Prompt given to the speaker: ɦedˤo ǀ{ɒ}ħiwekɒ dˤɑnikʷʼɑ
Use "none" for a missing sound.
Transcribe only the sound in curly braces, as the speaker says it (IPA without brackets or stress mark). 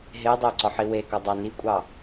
ɒ